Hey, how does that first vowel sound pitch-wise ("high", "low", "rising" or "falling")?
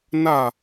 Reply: falling